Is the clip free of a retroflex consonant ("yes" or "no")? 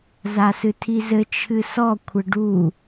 no